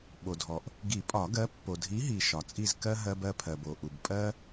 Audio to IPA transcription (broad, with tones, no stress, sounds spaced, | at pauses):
ɓ o˩ dʱ ɔ˩ ʔ | ɡ i˨˩˦ pʼ ɒ˨˩˦ ɡ ɜ˨˥ pː o˩ dʱ i˨˥ ɦ i˩ ʃ ɒ˩ t͡sʼ i˧˩ z k ɜ˧ ɦ ɜ˧ b ɜ˧ pʰ ɜ˩ b o˩ ʔ u˩ b pʼ ɜ˧